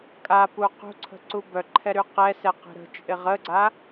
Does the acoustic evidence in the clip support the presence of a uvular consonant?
yes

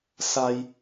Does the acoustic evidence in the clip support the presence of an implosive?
no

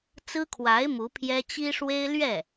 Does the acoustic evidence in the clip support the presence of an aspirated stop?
yes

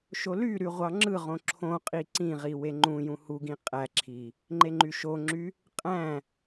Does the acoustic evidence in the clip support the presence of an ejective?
yes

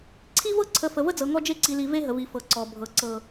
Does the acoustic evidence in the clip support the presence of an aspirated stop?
yes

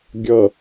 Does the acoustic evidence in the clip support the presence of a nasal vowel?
no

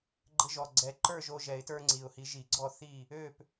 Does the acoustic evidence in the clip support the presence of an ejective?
no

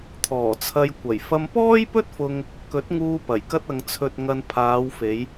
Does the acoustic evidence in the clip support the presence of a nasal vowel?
no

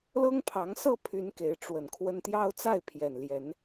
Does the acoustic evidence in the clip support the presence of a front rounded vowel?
yes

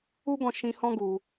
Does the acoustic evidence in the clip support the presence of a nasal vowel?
yes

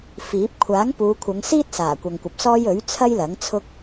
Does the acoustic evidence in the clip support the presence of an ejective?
no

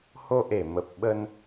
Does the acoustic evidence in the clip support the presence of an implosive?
yes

